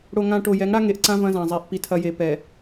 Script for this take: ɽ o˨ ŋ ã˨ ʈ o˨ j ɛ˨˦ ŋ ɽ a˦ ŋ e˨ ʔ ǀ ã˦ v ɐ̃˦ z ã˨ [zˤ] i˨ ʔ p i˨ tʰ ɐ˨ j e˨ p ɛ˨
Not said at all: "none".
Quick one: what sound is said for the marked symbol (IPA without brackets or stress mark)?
zˤ